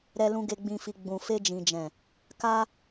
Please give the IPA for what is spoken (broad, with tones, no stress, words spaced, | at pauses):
ɾɛ˧lũ˧ ɡe˨ɡ͡bĩ˨fi˨ ɡ͡bũ˨ fe˧d͡ʒĩ˨d͡ʒɛ̃˨ | ka˧